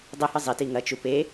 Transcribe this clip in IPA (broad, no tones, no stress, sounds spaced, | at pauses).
dˤ e h ɨ zˤ i t i ŋ ɐ t͡ʃ u p e